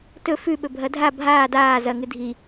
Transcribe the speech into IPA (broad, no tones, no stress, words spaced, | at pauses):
tɵ fʉɓɵ bʱɐdʱa bʱaː daː zɐŋɨ dʱi